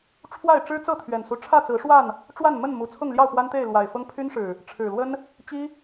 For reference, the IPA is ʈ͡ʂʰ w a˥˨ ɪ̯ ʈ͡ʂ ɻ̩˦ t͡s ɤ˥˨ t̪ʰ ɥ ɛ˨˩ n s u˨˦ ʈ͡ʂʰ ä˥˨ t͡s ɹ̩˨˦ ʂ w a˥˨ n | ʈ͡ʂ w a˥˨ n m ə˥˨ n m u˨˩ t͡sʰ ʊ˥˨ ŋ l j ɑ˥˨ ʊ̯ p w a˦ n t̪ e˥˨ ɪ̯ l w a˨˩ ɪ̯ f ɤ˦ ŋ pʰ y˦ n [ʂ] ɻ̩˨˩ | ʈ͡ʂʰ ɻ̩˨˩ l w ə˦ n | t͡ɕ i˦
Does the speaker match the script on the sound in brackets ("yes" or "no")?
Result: yes